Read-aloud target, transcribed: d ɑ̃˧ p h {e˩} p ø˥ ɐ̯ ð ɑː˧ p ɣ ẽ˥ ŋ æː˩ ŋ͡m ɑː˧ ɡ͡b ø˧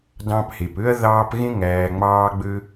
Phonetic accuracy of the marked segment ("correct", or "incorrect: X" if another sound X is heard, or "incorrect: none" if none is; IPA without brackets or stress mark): correct